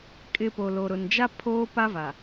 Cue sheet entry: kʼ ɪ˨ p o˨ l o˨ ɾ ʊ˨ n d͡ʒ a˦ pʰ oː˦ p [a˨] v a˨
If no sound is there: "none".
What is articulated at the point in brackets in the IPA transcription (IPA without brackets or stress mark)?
a˦